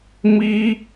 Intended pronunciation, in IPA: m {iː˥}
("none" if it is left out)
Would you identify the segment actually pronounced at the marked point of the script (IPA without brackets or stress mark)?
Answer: iː˥